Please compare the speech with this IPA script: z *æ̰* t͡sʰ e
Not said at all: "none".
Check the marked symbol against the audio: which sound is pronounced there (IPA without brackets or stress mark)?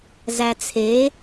æ